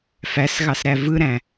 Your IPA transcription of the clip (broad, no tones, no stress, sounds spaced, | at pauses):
f æ s ɣ ɑ s ɾ æ v ɯ ɾ æ̃